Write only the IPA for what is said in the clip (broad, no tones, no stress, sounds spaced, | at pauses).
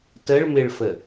t ə ɭ m ɪ ɭ f ə